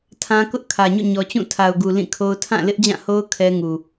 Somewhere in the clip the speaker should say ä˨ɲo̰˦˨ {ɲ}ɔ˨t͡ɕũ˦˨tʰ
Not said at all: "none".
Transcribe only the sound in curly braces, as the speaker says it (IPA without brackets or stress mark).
ɲ